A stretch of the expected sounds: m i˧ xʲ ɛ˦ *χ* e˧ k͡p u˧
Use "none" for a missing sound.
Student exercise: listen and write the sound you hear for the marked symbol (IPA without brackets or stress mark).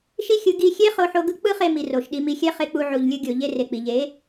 χ